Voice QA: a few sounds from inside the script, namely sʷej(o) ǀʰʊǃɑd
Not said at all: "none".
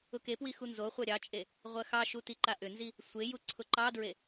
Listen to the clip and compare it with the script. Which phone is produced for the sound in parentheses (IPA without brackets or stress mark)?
u